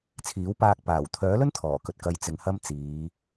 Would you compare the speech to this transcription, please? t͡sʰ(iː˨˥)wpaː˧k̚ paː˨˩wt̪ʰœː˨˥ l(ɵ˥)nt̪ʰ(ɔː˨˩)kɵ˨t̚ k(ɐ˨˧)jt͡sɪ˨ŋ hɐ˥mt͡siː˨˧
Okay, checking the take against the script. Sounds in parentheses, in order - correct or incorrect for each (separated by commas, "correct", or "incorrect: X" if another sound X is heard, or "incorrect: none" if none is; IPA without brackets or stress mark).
correct, correct, correct, correct